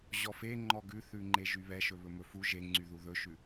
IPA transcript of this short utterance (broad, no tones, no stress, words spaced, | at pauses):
ʑɔfe ŋ͡ǃɔɡʉθʉŋ͡ǃe ʒyβɛʃɵ βɵmɵfu ʒeŋ͡ǀyðu ðɵʃʉ